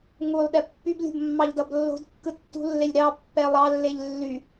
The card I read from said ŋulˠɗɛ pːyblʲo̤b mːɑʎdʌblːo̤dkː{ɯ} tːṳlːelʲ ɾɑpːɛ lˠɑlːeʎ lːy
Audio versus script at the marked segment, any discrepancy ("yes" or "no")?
no